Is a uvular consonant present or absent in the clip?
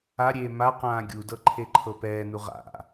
present